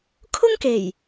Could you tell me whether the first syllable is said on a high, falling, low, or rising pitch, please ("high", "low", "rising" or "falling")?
high